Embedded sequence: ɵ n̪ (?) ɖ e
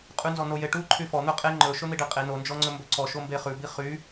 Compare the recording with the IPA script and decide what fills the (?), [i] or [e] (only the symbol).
i